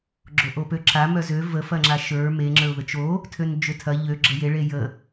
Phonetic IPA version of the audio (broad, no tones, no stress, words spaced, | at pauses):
ɡ͡ǁoʔopøǁa mœzø və fɐŋ͡ǁaʃə˞ me ŋ͡ǁə˞ʊ̯ðət͡ʃo | tʰønd͡ʒøtʰɐ ʎø ɡ͡ǁəje ɭejə